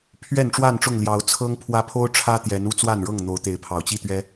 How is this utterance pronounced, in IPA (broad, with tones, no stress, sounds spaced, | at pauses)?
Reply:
pʰ ɥ ɛ˥˨ n ʈ͡ʂ w a˥˨ n ʈ͡ʂ ʊ˥˨ ŋ l j ɑ˨˦ ʊ̯ t͡sʰ ɤ˦ ŋ pʰ w ä˦ pʰ o˦ ʊ̯ ʈ͡ʂʰ ä˦ t̪ j ɛ˨˦ n u˥˨ t͡s w a˥˨ n ɻ ɤ˥˨ ŋ n̪ o˨˦ ʊ̯ t̪ e˨˦ ɪ̯ pʰ ɑ˨˩ ʊ̯ t͡ɕ i˥˨ t̪ ɥ ɛ˦